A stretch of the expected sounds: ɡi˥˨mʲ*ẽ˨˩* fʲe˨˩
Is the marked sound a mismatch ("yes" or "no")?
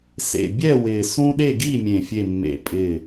no